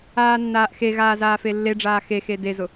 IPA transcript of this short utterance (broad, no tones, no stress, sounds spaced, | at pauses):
aː nː aː ʔ x e ɣ aː z aː f e lː e ɖ͡ʐ aː x e x e d e z ʊ